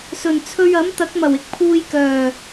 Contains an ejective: no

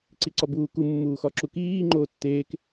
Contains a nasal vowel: no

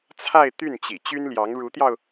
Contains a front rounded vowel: yes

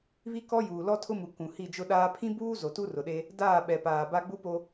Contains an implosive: yes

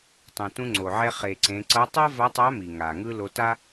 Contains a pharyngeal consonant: yes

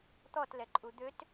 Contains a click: yes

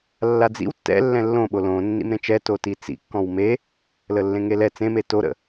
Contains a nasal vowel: yes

